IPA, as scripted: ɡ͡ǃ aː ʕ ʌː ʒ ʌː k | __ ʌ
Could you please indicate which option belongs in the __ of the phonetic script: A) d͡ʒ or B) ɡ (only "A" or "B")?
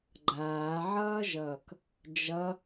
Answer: A